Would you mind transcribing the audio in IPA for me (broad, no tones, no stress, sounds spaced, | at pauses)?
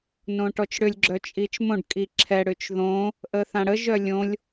n õ ʈ ɔ t͡ʃ ɽ ʏ lʲ ɡ͡ǁ œ t͡ʃʼ i t͡ʃ m õ ɖ kʼ i ǁʰ ɛ ɽ ʏ t͡ʃ ð õ | ʔ ə θ ã ɽ ə ʒ œ lʲ õ lʲ